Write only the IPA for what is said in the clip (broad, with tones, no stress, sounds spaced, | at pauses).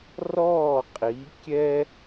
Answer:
r ɔː˥˩ qʼ i˩˥ kʲ ɛ˥